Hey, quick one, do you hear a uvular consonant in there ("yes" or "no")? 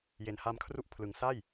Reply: no